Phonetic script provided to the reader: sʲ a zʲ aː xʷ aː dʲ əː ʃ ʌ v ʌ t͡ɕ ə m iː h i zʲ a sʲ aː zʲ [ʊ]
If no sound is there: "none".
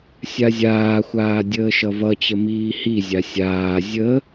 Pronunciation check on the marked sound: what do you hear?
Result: ə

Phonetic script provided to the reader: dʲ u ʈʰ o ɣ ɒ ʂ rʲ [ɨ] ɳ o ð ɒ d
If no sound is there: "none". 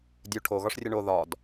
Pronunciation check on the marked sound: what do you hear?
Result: ɨ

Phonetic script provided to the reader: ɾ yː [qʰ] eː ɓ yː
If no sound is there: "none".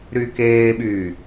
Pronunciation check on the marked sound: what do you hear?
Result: k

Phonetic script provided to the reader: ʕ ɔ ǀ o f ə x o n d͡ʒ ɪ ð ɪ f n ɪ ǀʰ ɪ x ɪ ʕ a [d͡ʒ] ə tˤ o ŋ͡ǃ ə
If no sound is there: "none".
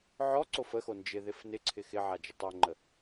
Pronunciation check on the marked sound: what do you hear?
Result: d͡ʒ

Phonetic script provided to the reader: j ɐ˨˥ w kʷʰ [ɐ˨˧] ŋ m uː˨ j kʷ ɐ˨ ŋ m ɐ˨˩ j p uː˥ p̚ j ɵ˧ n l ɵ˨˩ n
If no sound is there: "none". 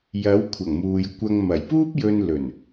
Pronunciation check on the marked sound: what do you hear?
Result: ɐ˨˩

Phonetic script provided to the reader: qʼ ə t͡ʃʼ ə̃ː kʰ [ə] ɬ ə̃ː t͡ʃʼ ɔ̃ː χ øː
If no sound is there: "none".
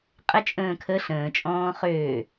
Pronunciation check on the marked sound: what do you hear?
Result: ə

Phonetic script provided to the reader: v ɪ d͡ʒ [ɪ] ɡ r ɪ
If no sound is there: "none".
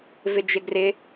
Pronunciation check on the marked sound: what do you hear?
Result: ɪ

